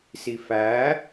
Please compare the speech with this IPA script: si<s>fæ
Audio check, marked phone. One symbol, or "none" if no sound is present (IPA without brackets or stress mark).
none